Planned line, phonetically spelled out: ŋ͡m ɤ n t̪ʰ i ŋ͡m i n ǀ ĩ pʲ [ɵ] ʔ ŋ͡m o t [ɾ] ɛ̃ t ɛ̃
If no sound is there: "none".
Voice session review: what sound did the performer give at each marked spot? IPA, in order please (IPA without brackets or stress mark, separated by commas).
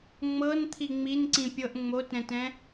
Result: ɤ, ɾ